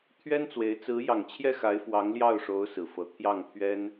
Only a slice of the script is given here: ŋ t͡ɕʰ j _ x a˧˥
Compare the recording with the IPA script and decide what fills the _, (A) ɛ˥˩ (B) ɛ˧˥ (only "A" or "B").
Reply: A